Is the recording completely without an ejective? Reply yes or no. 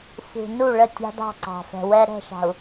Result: yes